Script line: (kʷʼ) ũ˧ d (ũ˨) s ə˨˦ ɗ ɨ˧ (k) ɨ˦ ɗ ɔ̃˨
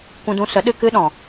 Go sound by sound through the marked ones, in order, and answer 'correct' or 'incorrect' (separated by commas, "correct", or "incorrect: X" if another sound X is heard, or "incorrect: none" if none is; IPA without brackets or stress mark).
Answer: incorrect: kʷ, incorrect: ũ˧, correct